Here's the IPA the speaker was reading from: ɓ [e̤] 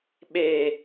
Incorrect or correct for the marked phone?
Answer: incorrect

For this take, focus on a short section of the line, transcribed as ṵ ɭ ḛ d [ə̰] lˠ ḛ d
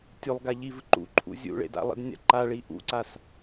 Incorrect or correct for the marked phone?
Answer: incorrect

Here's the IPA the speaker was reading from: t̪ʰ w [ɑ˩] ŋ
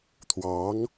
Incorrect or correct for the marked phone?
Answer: incorrect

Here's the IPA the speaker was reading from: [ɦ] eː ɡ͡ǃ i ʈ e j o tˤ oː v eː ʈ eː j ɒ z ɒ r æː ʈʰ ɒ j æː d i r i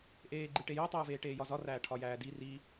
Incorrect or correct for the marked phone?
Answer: incorrect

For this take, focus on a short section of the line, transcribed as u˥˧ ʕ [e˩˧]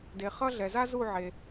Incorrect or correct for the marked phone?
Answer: incorrect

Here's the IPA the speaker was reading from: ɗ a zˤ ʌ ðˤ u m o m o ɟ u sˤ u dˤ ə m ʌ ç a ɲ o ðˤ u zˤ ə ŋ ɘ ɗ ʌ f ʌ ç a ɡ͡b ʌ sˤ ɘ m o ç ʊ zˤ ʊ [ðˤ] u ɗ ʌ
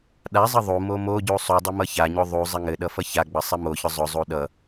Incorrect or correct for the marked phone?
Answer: incorrect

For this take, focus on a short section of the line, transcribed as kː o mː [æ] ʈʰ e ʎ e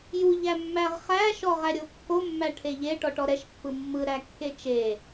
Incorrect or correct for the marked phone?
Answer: correct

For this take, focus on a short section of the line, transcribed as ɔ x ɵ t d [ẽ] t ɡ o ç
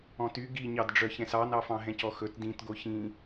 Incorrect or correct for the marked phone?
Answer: incorrect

